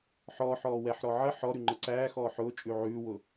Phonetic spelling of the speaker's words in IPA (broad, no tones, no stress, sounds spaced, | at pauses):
ħ ɔː ħ ɔː w ɛ ħ ɾ ɔ ʕ ə ħ ɔ ɾ ʉ ŋ͡ǃ ə ǀ æː x ɔː ħ ʊː t͡ʃʼ ʉ ʕ ʉː w ʊ